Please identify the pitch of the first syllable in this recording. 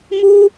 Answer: high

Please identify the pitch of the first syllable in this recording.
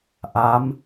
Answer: rising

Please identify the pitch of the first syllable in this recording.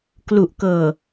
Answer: low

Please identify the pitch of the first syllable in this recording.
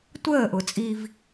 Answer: falling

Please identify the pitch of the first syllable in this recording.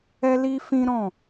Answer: high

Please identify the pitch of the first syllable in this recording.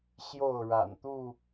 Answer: falling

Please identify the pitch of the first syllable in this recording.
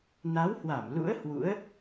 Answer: rising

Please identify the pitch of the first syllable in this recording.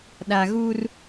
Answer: low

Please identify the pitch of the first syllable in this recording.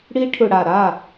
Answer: high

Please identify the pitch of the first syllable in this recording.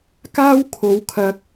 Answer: high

